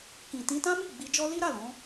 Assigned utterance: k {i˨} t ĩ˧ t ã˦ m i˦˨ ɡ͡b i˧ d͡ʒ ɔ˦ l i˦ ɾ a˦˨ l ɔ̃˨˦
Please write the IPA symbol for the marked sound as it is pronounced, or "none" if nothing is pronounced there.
ĩ˨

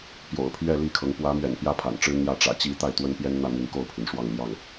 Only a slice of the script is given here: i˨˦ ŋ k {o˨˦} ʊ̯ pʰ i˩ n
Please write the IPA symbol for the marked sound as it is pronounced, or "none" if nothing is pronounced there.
o˥˨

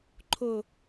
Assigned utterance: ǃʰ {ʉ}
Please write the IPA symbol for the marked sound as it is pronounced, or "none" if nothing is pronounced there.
ʊ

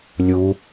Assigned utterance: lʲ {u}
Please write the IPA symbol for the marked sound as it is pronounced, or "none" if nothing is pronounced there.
u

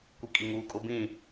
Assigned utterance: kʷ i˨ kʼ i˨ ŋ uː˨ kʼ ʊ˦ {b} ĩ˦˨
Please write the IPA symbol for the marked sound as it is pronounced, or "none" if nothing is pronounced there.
b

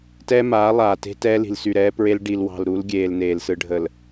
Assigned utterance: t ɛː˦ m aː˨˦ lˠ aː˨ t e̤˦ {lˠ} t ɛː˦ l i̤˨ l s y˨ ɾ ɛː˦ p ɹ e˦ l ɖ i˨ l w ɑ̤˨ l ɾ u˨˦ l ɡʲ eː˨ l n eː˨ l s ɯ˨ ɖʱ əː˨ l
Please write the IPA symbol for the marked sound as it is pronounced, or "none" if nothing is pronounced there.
none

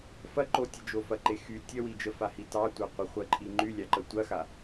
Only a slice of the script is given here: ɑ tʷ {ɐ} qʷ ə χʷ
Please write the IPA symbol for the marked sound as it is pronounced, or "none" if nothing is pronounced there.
ɑ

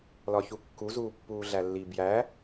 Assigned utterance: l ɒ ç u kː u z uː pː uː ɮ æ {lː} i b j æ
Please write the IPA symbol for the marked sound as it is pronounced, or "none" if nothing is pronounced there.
lː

